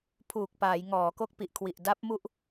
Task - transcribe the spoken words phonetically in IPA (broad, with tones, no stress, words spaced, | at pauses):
pʰuː˨˩k̚paː˩˦j ŋɔː˩˦ko˦˥k̚pi˨˩ʔ kʰwi˨˩ʔda˦˥p̚ mu˦˥ʔ